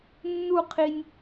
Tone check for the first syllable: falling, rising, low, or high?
falling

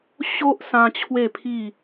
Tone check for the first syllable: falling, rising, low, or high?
high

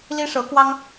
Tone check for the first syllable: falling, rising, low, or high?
high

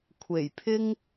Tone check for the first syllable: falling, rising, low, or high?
low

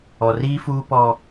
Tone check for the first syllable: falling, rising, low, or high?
low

